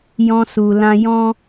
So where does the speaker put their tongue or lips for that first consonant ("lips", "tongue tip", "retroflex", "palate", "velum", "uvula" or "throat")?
palate